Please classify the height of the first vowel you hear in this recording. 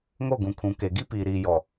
mid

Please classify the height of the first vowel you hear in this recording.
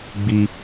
high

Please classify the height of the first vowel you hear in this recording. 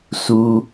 high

